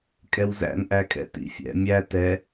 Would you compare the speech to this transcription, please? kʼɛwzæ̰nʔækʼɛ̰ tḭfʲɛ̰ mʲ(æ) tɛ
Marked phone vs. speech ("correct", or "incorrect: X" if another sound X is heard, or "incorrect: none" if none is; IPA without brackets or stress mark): correct